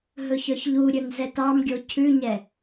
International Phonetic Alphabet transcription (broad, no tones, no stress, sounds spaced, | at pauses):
ɦ ɵ ç œ ç ʎ u ɾʲ ɵ n z ɛ t ɑ m ɡʲ o cʰ ʉ ɲ ɛ